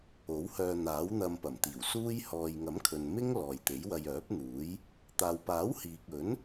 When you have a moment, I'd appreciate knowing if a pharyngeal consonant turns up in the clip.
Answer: no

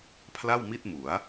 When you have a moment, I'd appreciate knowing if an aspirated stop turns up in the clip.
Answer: yes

